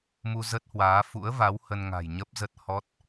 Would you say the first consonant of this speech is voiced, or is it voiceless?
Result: voiced